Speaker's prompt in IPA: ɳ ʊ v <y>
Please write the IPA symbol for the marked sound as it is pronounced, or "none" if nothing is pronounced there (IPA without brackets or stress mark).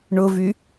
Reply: y